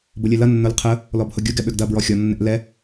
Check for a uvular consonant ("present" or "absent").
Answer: present